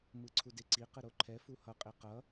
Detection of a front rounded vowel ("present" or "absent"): absent